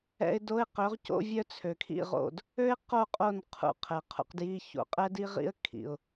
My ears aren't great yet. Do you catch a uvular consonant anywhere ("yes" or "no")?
yes